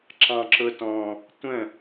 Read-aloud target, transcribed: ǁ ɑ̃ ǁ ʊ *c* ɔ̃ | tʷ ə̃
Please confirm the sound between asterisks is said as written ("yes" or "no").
no